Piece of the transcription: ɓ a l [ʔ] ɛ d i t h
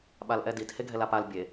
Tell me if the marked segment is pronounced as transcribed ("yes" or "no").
yes